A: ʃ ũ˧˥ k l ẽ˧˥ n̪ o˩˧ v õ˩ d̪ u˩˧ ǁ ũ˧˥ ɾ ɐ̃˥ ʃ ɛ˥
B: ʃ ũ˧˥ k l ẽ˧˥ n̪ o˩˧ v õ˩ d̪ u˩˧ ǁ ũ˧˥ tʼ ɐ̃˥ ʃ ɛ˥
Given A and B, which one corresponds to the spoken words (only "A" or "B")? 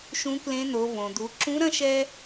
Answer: A